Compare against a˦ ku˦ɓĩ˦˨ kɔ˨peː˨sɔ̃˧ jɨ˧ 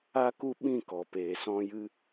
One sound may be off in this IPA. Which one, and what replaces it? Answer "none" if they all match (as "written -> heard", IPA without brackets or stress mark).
none